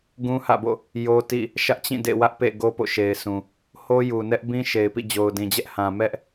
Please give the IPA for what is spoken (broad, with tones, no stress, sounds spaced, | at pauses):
ɡ ũ˦ h ä̰˦˨ b o̰˦˨ | j o˦ t ḭ˦˨ | ʃ ä˦ ʔ t͡ɕ ĩ˦˨ d ḛ˦˨ w ä˦ ʔ p ḛ˦˨ ɡ o˦ p o̰˦˨ ʃ e˨ ɪ̯ sʰ ũ˨ | h o˦ j u˨ n ɛ˦ ʔ b ĩ˦ ʃ e˨ ɪ̯ p ḭ˦˨ d͡ʑ o˨ ʊ̯ d ĩ˨ d͡ʑ ɛ˦ ʔ h ã˨ m ɛ˦ ʔ